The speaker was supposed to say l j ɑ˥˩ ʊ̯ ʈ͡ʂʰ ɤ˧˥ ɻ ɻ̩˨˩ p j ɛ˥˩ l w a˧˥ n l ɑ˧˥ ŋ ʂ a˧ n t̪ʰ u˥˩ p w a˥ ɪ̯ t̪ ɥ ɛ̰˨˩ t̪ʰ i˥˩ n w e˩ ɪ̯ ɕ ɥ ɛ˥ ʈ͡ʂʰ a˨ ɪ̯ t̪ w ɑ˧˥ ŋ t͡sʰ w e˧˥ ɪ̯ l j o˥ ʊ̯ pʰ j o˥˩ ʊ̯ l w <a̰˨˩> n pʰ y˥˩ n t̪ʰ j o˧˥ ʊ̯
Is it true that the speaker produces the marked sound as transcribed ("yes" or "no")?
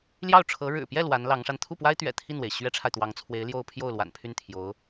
yes